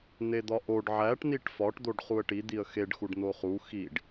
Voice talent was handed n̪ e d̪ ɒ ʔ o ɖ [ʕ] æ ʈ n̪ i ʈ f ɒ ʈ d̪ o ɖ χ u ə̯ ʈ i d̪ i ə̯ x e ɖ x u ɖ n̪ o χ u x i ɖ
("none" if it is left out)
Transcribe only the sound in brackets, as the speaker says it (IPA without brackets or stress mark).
ʕ